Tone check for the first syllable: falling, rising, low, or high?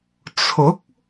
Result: rising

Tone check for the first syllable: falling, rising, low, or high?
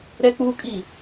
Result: high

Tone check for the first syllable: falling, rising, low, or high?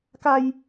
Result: high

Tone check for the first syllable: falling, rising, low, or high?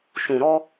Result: low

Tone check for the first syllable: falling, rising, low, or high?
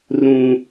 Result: high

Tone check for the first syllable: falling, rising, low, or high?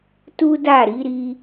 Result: high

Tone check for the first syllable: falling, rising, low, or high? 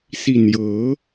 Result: low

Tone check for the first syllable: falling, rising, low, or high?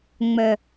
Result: low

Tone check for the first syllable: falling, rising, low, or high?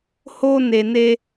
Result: high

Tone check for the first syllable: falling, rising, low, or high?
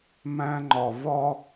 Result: high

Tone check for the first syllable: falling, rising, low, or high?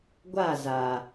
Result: falling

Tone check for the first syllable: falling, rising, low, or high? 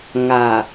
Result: low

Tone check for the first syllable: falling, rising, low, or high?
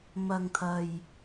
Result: low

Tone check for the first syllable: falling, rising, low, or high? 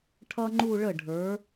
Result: high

